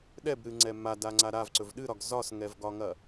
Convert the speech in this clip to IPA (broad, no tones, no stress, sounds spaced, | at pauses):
ɗ ɛ b ɾ ɨ ŋ͡ǀ ɛ m a d a ŋ͡ǀ a ɾ a v ǀ ɵ v ɗ ɨ ɾ ɒ ɡ z ɒ s ŋ ɛ v ɡ ɒ ŋ ɐ